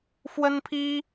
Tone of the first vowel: high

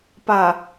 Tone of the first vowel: low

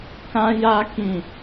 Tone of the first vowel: high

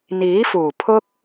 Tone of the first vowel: rising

